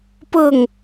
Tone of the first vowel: falling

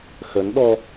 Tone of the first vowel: rising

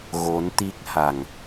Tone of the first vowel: rising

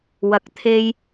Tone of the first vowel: low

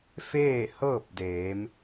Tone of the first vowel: falling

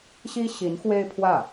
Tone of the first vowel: high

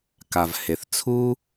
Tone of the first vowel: low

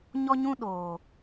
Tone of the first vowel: high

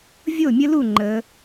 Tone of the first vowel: falling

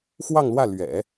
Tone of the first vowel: falling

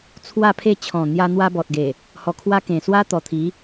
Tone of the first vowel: falling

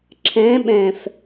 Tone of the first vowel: rising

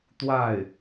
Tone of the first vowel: falling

